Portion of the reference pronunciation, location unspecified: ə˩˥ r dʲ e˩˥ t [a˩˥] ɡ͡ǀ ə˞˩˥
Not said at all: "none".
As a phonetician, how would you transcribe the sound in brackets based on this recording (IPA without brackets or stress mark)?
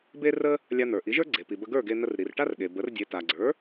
a˩